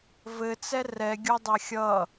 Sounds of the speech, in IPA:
vɘt͡sɛ rɛɡʲodˤa xʲʌ

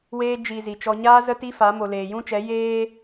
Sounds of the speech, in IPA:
weː˧d͡ʒi˨ zi˨t͡ʃɔ˧ ɲaː˧ zə˧ti˧ fa˨˦ mo˨leː˨jũ˦t͡ʃɛ˨˦ jeː˦

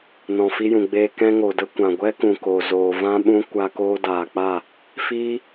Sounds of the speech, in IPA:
nɔ̃˨fi˧jũ˨ɡ͡beː˧ kɛ̃˧ŋo˨də˧ kʷã˨ɡʷɛ˦kũ˨ko˨ zoː˨vã˧ɓũ˧ kʷa˧ koː˧daː˨k͡pa˦˨ | fiː˦

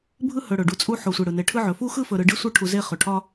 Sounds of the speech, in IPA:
bʱɯ˦ hɵ˨ɽɵ˩ɖu˨ t͡sʼu˦ ħo˨sʷe˨ɽɯ˩ne˨ ʈʰɯ˦ʕɵ˩ fu˥xɯ˥fɵ˨ ɾɯ˨ɖi˥sʷɯ˦ ʈʰu˨ze˦ χɵ˩ʈʰɒ˦

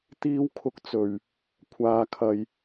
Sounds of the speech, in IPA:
t̪iː˨˧wkʰʊ˨k̚ t͡sɵ˨˩ɥ | kʷʰaː˨kʰɐ˨j

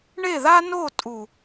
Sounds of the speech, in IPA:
ɳe˦˨ða˦no˦˨ tʼu˨

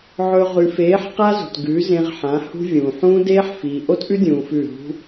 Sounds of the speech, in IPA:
ʕɵ˨ ʁʉ˨feː˨˦ħ qa˦zṳ˨t ɡʉ˨˦ zẽ˧ʁħã˨˦hṳ˦ vʲũː˨ ħũː˦deː˦ħ fiː˨ʔo˦tʔʉ˦ dʲũː˧fʉ˦˨ ɦṳ˦

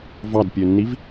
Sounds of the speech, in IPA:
vɑdpʲønːiv

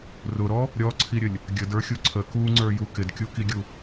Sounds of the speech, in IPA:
rʊɾɔ | ɾʲɔǀʰiɾʲəlʲ | ɡʲədə˞xʲu ǀʰə kuŋ͡ǀə˞ju kɪdkʲukiɡʲu

